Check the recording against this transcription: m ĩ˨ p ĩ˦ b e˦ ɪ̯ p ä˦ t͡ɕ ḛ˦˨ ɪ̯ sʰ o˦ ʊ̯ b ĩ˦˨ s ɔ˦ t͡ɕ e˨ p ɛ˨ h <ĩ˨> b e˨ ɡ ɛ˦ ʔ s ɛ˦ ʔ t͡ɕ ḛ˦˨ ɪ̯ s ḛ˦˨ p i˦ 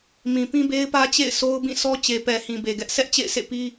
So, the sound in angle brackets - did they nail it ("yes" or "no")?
yes